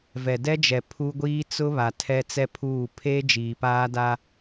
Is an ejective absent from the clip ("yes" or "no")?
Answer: yes